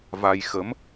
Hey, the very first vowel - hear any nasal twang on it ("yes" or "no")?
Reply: no